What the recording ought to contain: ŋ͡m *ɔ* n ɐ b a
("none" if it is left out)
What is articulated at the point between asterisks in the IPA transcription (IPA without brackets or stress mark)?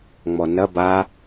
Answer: ɔ